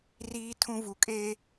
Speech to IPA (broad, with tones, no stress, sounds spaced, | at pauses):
r iː˦ tʰ ũ˦ v u˨ kʼ e˦